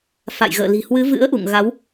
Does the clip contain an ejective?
no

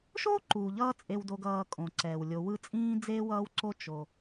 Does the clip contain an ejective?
yes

